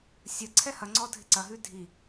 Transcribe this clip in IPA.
sʲ ɐ ǀʰ ɛ h ɐ ŋ͡ǀ ɔ dʱ ɪ ǀ ɐ ɦ ʉ dʱ i

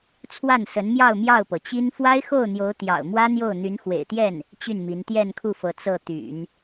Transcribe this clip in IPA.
t͡sʰ w a˥˩ n s ə˧˥ n m j ɑ˥˧ ʊ̯ m j ɑ˥˩ ʊ̯ p ɤ˩ t͡ɕ i˥ n f w a˥ ɪ̯ x o˥˩ ʊ̯ n̪ j o˧˥ ʊ̯ t̪ j ɑ̰˨˩ ʊ̯ m w ä˥ n̪ j o˥˩ ʊ̯ n̪ y˧˥ n x w ḛ˨˩ ɪ̯ t̪ j ɛ˥˩ n | t͡ɕ y˥˩ n m i˧˥ n t̪ j ɛ˥˧ n kʰ u˥˩ f ɤ˧˥ t͡s ɤ˥˩ t̪ y̰˨˩˦ n

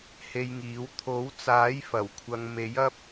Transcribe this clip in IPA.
h e˧ j ŋ iː˨˥ w t̪ʰ o˨˥ w t͡s aː˨˥ j f ɐ˨˩ w kʷʰ ɐ˨ ŋ m e˨˥ j ɐ˥ p̚

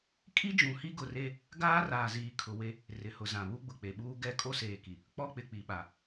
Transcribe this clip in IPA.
kʼ i˦ d͡ʒ ũ˨ h i˦ ɡ ʊ˨ r e˦ | ɡ aː˦ r aː˨ z iː˨ kʰ ʊ˨ w e˦ | r ɪ˨ h ʊ˨ z ã˨ β u˦ ɡ͡b ʊ˨ k͡p e˨ ɓ uː˦ ɡ ɛ˦ kʼ o˦ s eː˨ k i˨ | k͡p ɔ˦ k͡p ɪ˨ k͡p i˨ ɓ a˨

